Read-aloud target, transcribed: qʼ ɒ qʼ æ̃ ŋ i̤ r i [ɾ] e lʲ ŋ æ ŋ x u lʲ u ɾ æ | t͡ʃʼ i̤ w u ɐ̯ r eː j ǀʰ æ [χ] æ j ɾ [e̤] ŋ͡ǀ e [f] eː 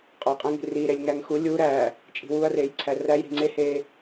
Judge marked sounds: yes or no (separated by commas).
yes, no, no, no